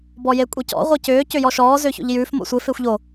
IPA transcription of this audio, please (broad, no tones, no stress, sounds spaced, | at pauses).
b ɔ j e kʷʼ i c ɔ̰ ʁʷ i c ʏː c ʏ j ɔ ʃ ɔː z ʏː ç o̰ ʎ j ʉː f m o̰ sʷ ɪ f ɪː xʷ ʎ o